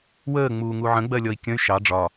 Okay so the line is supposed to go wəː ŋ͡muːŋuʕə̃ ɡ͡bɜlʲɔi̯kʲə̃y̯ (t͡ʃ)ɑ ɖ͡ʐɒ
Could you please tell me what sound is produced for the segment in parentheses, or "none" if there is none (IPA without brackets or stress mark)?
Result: ʃ